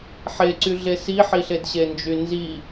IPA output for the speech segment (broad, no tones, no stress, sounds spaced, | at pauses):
ħ e ǀ y ɮ e s i ħ i ɬ e d ɕ e n d͡ʒ y n z i